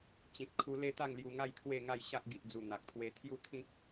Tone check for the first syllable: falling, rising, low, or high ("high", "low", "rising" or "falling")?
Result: low